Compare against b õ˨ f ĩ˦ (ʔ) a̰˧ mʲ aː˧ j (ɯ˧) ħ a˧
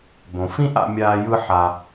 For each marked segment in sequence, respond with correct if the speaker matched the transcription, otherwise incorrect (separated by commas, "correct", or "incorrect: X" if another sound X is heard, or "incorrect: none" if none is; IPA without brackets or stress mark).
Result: correct, correct